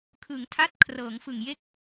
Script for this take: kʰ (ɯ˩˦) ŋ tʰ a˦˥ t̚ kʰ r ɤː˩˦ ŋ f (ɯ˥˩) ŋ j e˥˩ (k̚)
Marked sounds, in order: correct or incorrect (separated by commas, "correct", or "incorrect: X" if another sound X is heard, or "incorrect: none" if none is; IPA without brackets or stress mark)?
correct, incorrect: ɯ˨˩, correct